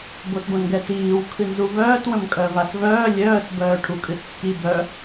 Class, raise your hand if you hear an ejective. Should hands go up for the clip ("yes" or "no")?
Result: yes